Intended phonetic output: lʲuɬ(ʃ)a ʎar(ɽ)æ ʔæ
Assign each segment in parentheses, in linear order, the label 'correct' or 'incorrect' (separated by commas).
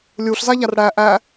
incorrect, correct